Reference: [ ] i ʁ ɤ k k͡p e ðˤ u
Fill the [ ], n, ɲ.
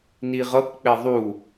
n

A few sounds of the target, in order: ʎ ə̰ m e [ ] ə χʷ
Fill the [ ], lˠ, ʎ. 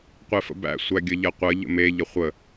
ʎ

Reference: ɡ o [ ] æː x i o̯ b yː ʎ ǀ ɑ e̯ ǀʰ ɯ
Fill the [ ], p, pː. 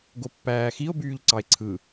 pː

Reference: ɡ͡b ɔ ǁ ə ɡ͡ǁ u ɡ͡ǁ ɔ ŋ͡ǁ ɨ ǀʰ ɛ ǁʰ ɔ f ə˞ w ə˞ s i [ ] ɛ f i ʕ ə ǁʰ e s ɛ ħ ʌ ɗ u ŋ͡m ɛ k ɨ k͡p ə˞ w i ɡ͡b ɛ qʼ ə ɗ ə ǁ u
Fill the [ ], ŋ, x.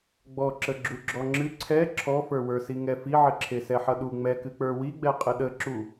ŋ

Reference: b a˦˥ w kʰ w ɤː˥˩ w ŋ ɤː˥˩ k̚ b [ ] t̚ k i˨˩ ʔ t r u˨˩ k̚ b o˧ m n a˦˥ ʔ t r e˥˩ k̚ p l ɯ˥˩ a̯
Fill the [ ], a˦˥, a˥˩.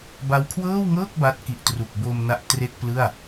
a˦˥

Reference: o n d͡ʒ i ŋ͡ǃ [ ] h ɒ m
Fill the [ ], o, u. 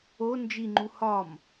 u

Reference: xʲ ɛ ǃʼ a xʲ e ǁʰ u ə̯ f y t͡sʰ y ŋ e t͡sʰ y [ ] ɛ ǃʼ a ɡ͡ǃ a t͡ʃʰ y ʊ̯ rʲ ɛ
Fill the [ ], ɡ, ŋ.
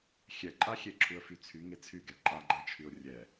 ɡ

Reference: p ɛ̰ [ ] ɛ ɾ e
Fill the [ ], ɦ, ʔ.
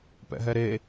ɦ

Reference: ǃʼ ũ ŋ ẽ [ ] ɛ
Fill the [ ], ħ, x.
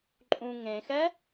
x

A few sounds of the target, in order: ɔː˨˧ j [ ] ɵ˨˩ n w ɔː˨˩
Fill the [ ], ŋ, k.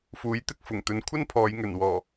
ŋ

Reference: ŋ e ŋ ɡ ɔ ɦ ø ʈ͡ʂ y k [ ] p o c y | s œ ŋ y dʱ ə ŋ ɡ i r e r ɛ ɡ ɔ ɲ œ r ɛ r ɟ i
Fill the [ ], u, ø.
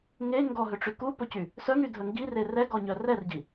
u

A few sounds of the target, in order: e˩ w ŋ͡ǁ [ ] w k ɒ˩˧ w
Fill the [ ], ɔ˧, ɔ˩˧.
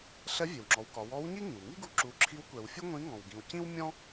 ɔ˩˧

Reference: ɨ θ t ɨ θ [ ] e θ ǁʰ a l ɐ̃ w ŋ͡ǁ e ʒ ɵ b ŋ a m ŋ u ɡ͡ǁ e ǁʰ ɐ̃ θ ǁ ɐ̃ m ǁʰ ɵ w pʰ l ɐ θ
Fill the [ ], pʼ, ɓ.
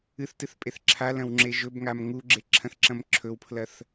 pʼ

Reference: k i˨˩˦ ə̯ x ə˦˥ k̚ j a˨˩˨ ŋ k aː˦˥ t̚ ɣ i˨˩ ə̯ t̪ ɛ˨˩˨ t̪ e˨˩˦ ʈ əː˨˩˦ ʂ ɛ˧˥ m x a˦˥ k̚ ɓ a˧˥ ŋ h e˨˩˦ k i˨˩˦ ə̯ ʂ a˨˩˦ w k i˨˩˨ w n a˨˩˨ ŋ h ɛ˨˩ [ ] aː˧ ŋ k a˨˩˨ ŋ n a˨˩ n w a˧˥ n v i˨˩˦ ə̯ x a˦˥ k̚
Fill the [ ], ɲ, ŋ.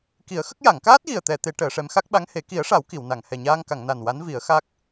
ɲ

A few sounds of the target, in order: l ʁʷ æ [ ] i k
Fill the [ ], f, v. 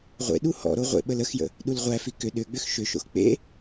f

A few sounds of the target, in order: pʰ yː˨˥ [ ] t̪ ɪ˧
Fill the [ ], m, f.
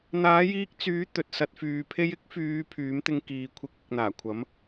m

